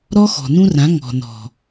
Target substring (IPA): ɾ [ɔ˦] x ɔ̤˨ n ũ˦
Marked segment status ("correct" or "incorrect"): correct